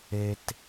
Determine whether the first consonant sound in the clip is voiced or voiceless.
voiceless